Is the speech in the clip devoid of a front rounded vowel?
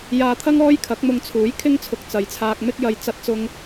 yes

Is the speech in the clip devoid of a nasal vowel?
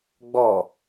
yes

